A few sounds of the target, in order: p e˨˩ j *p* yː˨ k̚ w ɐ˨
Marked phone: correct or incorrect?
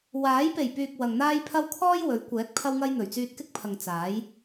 correct